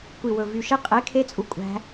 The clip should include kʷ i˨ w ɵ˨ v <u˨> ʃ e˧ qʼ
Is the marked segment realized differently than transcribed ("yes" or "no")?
yes